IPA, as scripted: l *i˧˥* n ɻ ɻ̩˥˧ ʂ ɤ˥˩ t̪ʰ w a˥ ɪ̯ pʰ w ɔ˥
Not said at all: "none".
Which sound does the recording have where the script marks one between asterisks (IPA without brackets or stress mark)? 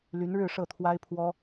y˧˥